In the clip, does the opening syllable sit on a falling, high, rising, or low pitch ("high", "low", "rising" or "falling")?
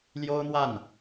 high